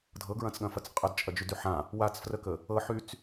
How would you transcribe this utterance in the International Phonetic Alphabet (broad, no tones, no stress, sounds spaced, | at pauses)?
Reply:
dʱ ɤ ɡ ɹ ɐ̃ t͡s ɠ ɐ̃ f ɐ t͡s qʼ ə d t͡ʃʼ ɐ d͡ʒ y d y ħ ã | w a t͡s f r ə k ə | ɤ ħ y t͡s